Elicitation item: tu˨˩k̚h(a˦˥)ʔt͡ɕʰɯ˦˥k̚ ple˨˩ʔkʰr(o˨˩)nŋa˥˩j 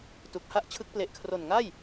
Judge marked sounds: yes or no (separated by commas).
yes, yes